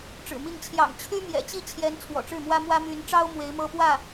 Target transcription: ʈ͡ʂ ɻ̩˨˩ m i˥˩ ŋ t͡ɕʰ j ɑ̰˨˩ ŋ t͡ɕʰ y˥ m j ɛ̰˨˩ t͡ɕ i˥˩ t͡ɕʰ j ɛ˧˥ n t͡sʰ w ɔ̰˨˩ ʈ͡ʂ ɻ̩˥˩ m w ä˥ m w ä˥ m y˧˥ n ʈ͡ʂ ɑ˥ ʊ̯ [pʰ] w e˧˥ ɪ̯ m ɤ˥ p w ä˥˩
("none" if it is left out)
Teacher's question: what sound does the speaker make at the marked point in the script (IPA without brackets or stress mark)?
m